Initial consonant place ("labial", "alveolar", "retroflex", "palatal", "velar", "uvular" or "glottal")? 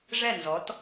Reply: retroflex